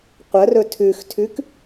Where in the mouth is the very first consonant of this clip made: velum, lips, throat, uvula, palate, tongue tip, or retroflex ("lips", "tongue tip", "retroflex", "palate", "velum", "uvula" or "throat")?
uvula